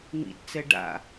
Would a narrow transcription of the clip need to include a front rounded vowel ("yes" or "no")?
no